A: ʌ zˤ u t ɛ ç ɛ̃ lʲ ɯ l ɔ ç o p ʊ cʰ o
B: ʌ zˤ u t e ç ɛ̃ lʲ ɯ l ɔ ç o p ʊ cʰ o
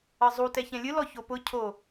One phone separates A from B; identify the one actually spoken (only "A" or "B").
A